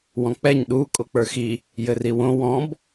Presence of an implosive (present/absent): present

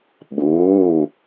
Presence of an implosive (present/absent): present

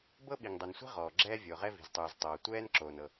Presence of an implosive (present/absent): present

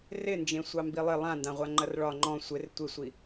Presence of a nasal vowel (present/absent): present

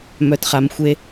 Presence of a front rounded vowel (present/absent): present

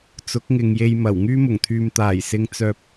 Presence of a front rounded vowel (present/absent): present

